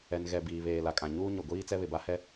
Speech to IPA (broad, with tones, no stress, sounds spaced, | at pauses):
ɛ˨ n ɣ ɛ˨ b iː˨ β eː˨ l a˨ kʼ ã˨ ɲ uː˦ ɲ o˨ ɡʷ iː˦ t͡s ɛ˦ β ɪ˨ b a˦ h ɛ˦